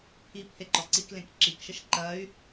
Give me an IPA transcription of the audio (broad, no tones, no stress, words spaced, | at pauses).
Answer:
pʰi pʰeǃɔǀiklẽk ǁikʃəʃ ǃɐy̯